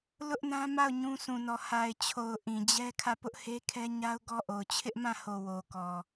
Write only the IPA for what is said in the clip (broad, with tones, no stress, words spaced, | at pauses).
lʊ˦ʔnã˦ ma˦˨ʊ̯ ɲũ˦ sʰũ˨nɔ˨ ha˨ɪ̯t͡ɕʰo˨ʊ̯ ʔĩ˨d͡ʑɛ˦ kʰä˦˨pʊ˦ʔhe˦kʰɛ˦ ɲa˦ʊ̯ɡɔ˦ʔo˨ʊ̯ t͡ɕʰɪ˦ʔmã˦˨ho˨ wo˨kɔ˨